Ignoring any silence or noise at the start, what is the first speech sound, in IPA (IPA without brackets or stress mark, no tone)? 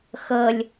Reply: x